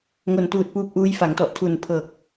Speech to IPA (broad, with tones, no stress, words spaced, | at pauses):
ŋo˨˩ntuː˨˩t̚puː˦˥p̚ʔuː˦˥j fa˩˦ŋtɔ˨˩ʔ tʰu˨˩n pʰɤː˨˩k̚